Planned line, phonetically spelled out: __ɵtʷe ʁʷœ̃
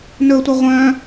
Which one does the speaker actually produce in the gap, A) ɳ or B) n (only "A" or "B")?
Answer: B